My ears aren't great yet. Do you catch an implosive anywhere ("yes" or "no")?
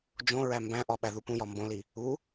yes